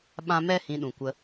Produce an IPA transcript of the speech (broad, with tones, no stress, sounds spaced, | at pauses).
ɓ ã˦ m ɛ˦ h ĩ˧ ɗ ũ˨ kʷ ə˧